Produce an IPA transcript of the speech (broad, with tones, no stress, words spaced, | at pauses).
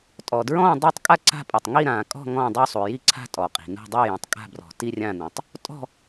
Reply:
tʼɔ˨ dɹɔ̃ː˥˧ dˤa˥˧tˤkʼa˥˧ ǀa̤˥˧pʼɐ˨tˤ ŋi˥˧ɾãː˨kʼɔ̤˥˧ ŋɔ̃ː˥˧dˤu˥˧sˤu˨ ji˥˧ǀʰa̤˥˧ tʼɔ˨qʼi̤˨nṳ˥˧ dˤi˥˧jũ˨tˤkʼa̤˥˧ brɔ̤˨ti˥˧ rʲã˥˧nũ˨tˤ | tʼɔ̤˥˧